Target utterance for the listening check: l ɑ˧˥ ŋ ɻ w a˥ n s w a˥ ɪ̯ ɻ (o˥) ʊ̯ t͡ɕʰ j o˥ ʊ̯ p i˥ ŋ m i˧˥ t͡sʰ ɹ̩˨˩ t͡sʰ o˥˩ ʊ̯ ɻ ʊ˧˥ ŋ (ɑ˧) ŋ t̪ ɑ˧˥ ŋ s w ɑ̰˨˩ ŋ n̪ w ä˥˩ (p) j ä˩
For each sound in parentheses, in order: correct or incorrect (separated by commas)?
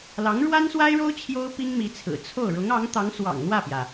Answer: correct, incorrect, correct